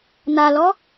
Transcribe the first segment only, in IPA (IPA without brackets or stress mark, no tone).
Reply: n̪